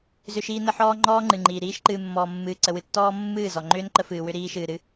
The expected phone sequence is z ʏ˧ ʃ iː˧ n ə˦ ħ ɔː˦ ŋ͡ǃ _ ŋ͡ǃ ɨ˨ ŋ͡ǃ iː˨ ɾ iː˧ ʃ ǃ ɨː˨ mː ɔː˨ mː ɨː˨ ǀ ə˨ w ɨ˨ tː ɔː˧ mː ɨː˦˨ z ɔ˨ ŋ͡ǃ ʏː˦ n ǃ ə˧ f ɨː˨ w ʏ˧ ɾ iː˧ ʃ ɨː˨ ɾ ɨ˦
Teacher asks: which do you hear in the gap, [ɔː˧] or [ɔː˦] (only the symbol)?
ɔː˦